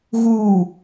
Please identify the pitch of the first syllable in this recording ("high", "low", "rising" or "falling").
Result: low